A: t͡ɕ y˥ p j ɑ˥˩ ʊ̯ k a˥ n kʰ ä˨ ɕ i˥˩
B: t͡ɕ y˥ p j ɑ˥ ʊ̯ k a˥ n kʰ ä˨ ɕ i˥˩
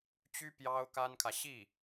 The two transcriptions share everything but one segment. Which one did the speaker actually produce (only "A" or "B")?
B